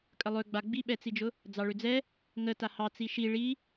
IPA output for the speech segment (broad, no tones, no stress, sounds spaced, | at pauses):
kʼ ə lˠ ø ɡ͡b a ɡ͡b i ɓ ɛ t͡s i d͡ʒ ʊ | d͡z ɑ ɭ ø d͡z ɛ | ŋ ə t a h ɑ t͡s i ʃ i ɭ i